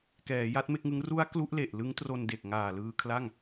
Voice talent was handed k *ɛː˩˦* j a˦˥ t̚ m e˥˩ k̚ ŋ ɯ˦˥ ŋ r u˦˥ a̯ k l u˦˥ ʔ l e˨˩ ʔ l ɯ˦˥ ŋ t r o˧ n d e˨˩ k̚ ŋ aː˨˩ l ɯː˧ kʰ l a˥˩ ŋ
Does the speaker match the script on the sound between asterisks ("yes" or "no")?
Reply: yes